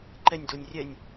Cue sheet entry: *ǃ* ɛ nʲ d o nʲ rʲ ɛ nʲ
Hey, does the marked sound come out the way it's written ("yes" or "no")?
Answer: yes